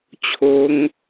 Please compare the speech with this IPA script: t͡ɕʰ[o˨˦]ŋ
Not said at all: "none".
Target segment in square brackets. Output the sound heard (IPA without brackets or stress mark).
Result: o˨˦